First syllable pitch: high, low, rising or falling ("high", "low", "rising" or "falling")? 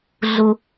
low